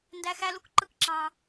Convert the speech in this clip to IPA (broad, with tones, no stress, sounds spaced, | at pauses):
n d æ˧ x æ˧ l u˥ k ǃ ɯ˧ k ǁ ɑ̃˩